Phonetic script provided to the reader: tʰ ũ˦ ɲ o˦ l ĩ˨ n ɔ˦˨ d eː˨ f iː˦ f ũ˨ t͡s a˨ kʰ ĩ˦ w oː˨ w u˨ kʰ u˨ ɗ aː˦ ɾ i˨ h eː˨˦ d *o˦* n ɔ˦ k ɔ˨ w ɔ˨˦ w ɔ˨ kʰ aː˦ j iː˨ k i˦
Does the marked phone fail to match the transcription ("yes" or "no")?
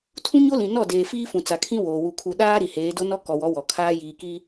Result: no